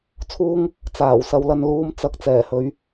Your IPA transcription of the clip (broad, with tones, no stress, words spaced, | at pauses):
t͡sʰuː˥ŋ | t͡saː˨˩wsɐ˨˧wlɐ˧n luː˧mt͡sɐ˧k̚ t͡sɛː˨˩hɵ˨˥ɥ